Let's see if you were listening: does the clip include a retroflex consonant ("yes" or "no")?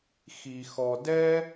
no